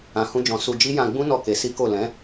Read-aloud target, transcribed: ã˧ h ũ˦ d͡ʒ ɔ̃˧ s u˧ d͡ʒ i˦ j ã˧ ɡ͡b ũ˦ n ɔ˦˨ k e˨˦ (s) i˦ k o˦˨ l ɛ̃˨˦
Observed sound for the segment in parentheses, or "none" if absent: s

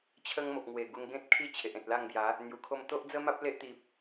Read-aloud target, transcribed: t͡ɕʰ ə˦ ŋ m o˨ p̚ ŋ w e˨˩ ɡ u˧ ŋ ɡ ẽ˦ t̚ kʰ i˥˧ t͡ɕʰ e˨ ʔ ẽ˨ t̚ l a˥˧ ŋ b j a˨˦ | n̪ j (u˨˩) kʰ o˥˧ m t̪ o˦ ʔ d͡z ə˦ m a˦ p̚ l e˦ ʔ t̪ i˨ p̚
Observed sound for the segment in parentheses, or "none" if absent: u˨˩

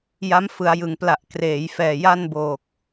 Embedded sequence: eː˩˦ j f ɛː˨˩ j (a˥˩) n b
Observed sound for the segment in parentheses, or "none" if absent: a˥˩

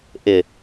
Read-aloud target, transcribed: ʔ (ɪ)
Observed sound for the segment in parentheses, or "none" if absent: ɪ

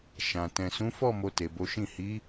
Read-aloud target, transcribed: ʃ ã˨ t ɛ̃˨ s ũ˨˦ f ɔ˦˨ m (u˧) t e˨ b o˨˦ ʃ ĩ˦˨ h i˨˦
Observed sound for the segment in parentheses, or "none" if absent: o˧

